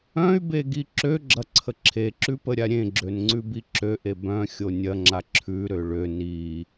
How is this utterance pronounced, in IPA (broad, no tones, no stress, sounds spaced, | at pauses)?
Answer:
œ̃ y̯ b e ɡ i ǁ ø ɡ͡ǁ ɐ ǀʰ ə ǁʰ e ǁ ʉ p ə ɾʲ a ɾʲ ẽ ɡ͡ǁ ø n ŋ͡ǀ ʉ b i ǁ ø ʔ e b œ̃ xʲ o nʲ ɐ ŋ͡ǁ a ǁʰ ʉ ɾ ø ɭ ø n i